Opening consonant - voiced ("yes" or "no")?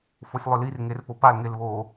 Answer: no